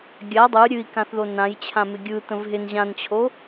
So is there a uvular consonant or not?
no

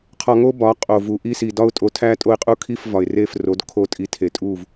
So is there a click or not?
no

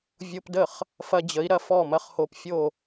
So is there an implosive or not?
no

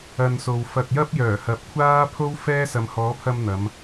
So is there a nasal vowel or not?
no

